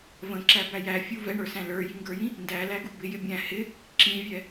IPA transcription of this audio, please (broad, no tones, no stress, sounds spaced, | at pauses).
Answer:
v ə̃ ǁ æ b æ j æ fʲ u v ɛ ɳ ə˞ s æ̃ l ə˞ j i ŋ ɡ ə˞ j ĩ | n d æ l æ ɡ u b ɪ j ɪ bʲ æ̃ h ɪ | ǁ ĩ vʲ ɛ